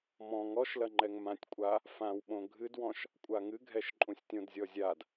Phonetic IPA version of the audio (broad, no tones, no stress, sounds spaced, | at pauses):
m ɔ̃ ŋ ɔ ʃ l ɐ ŋ͡ǃ ɛ ŋ m ã tʲ kʷʼ a | f ã w ɓ õ ɡʱ ɨ d w ɔ̃ ʃ | kʷʼ a ŋ ɨ ɡʱ ɛ ʃ ǃʼ ũ sʲ tʲ õ d zʲ ɔ zʲ a d